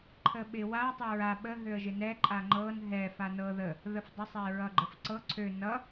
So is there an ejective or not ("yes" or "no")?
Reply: yes